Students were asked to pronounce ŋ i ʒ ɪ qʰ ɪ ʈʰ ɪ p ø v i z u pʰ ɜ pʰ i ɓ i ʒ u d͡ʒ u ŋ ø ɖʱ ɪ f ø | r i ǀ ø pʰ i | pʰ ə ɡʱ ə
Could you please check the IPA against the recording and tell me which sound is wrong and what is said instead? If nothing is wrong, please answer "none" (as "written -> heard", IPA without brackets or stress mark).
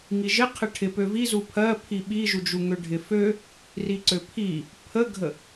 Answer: none